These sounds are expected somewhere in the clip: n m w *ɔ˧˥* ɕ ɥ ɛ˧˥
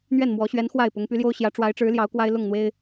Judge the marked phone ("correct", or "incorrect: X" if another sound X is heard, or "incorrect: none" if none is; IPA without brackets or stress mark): correct